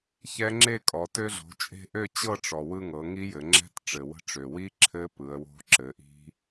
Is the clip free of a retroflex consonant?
no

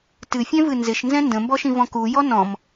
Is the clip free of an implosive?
yes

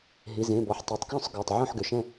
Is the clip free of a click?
yes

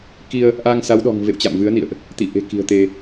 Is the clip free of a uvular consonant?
yes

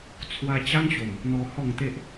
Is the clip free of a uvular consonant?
yes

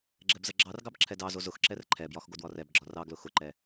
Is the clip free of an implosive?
yes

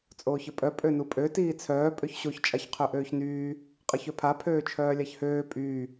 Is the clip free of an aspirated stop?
no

